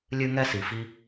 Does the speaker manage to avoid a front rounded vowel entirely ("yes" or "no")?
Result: yes